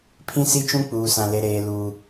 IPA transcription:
pʰ ĩ˦ s i˦ t͡ʃ ũ˦ k͡p uː˦ s ã˦ l e˦ ɾ eː˦ l uː˦

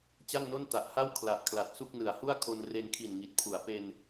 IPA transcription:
t͡ɕ a˥˩ ŋ n o˥˩ n t a˨˩ ʔ h a˥˩ w kʰ l a˨˩ ʔ kʰ l a˨˩ t̚ s u˥˩ k̚ n ɯ˨˩ a̯ h u˥˩ a̯ kʰ o˧ n r e˧ n kʰ i˨˩ n ŋ i˨˩ t̚ pʰ u˩˦ a̯ p e˧ n

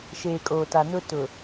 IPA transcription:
ʃ eː˨ kʼ oː˨ t a˨ n ʊ˦ t ʊ˨

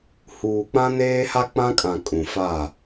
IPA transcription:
h uː˨ k͡p ã˦ n eː˦ h a˦ k͡p ã˦ kʼ ã˨ kʼ ũ˨ f a˦˨

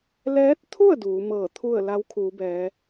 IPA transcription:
l ɛː˧˥ t̚ t̪ʰ u˥˨ ə̯ d uː˩˧ m ɤː˧˩ t̪ʰ u˥˨ ə̯ l a˧˥ w kʰ uː˩˧ b ɛː˩˧

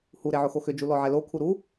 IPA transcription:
h u ɾ e ʕ ʊ x o x ʏ d͡ʒ u l ɔ ʕ ɛ l o kʰ u ɾ u

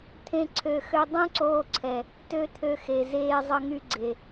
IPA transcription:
t̪ʰ ẽ˦ ǀʰ ø˧ x ø˦ dˤ ũ˦ ǀ oː˧ ǀʰ ɛ˨ | t ø˦ t̪ʰ ø˧ x e˨ z eː˧ zˤ ə˦ ŋ y˦ ɡ͡ǀ e˨

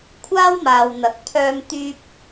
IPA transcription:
kʷʰ aː˥ w m aː˨ w n̪ ɐ˨˥ k̚ pʰ œː˥ m t̪ yː˥ p̚

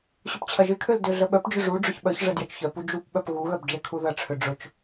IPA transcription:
ɕ ʊ p t͡ɕʰ ɐ ʒ ɪ kʰ ø l d ø ɮ ə ɓ œ p d͡ʒ ʏ ʐ u ɖ͡ʐ ʊ ç ɓ œ ç ʐ ə d j ɐ t͡ʃ ç œ p u d͡ʒ u p ɓ œ p ɣ u ɣ œ b d͡ʒ ɛ kʰ u ð ɐ ʈ͡ʂʰ ʏ ɖ͡ʐ ʊ t͡ʃ

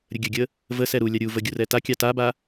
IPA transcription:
ɾʲ ə ɡʲ ə ɡʲ ə | v ə s ɛ ɾ u lʲ a ɾʲ u v ə ɡʲ u r ɛ t a kʲ ɑ t a b a

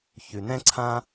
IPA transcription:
ç ʉ˧ n ɛ̃˥ ǀʰ ã˥

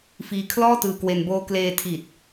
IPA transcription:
f iː˧ kʰ l ɔː˥˩ t ɯː˧ k w e˧ n b oː˧ k l eː˧ tʰ iː˨˩ t̚

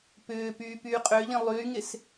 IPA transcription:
p ʏː p yː p yː qʼ ø ʎ ĩ lˠ yː ŋ ɪ s

